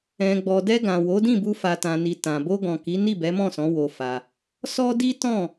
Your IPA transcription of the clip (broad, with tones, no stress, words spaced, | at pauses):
ɛ̃˨ɡ͡bɔ˨dɛ˧ ɡã˨wo˨˦dĩ˦˨bu˧ fa˨tã˨ni˨ tã˨ bo˧ɡɔ̃˨ki˨˦ni˦˨ bɛ˨˦mɔ̃˦˨sɔ̃˨˦ wo˧fa˧ | sɔ˦ di˦ tɔ̃˦˨